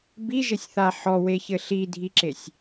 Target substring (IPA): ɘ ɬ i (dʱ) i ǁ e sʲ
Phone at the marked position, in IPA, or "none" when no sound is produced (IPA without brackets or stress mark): dʱ